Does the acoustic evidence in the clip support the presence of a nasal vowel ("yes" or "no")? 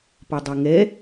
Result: no